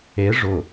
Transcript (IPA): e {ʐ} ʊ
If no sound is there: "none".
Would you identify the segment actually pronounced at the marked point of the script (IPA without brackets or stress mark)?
ʐ